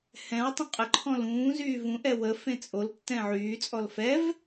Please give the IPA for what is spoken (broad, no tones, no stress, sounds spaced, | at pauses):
h ɛ̃ w tˤ ũ qʼ ə ǃʰ ɔ̃ l ũː z yː v ũ ʔ ɛ w ə f ẽ t͡sʼ o l tː ɛ̃ ʕ yː t͡sʼ ɔ l f ɛ v